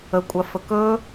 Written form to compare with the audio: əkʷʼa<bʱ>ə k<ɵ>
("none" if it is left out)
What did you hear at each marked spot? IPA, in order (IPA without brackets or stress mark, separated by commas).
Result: f, ɵ